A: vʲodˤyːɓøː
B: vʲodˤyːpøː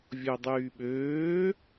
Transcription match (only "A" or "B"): A